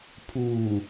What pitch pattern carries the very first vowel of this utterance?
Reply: low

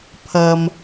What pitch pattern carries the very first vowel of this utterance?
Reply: low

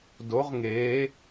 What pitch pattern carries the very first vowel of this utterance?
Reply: rising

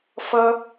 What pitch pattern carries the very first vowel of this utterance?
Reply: high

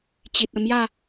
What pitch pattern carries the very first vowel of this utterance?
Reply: low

